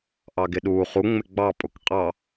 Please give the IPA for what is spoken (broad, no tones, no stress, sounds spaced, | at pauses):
ʔ ɑ ɡ ɪ ɗ uː χ u ŋ͡m ɪ ɡ͡b ɑ pʼ ʊ k qʼ ɑ